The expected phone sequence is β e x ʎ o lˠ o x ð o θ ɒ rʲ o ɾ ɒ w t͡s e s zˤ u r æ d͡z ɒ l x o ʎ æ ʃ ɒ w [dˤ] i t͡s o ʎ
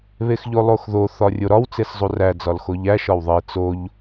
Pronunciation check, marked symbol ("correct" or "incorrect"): incorrect